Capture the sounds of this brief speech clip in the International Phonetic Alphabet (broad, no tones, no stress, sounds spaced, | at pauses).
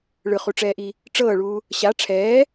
ɭ ɯ χ u ʈ͡ʂ ɛː ʔ i | ʈ͡ʂ ɤː ɭ uː | ɕ a ʈ͡ʂʰ ɛː